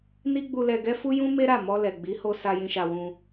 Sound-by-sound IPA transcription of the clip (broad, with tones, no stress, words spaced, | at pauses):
ni˦ɡ͡bu˧lɛ˧ɡɛ˦ fu˦jũ˦ me˦ɾa˦˨ mɔ˧lɛ˨ɡ͡bi˨˦ ho˧ sa˧jĩ˧ʃa˧wũ˧